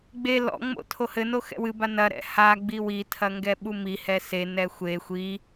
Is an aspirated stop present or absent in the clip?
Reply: present